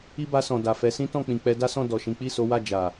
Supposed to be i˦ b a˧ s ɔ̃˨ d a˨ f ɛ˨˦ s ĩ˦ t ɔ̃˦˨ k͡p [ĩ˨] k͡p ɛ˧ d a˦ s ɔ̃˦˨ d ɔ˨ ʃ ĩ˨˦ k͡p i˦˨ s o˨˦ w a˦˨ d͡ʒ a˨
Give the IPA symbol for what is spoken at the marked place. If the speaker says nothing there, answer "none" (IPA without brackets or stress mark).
ĩ˨